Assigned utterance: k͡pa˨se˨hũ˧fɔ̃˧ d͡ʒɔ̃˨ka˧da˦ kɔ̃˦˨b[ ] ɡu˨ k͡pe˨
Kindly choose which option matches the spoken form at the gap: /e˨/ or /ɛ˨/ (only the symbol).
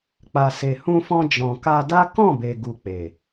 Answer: e˨